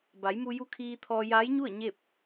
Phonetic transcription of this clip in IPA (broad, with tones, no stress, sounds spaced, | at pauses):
b a˩˧ j m u˧ j u˧˥ kʰ iː˧ t̪ʰ ɔː˧ j aː˧˥ j ɲ u˥˨ ə̯ ɲ e˥˨ p̚